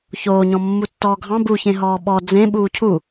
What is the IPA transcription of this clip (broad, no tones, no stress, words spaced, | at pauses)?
çoːɲɔ̃ mːutːɔːɡʱɑ̃ buçẽ ɦɔːɓɔ d͡zẽ ɓuːcʰu